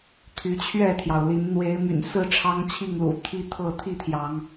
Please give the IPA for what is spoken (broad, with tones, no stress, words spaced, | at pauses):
t̪ʰy˨˦t͡ɕʰɥɛ˥˨t̪ʰjɑ˩ʊ̯li˨˦n n̪we˨˦ɪ̯my̰˨˩nsɹ̩˥˨ ʈ͡ʂʰɑ˦ŋt͡ɕʰi˥˨ŋlṵ˨˩ t̪ʰi˦t̪ʰɤ˥˨ t̪ʰi˥˨t̪ʰjɑ˨˦ŋ